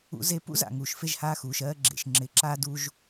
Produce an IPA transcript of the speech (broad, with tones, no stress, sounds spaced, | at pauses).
ṵ˧ z e˧ p ṵ˥ z a̰˩ ŋ uː˩ ʃ f e˧ ʒ h aː˧ x uː˩ ʃ ɜː˧ ɡ͡ǁ ḛ˩ ʃ ŋ͡ǁ ɪː˧ ǁ aː˥ d u˧ ʒ